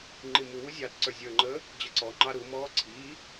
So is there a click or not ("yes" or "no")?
yes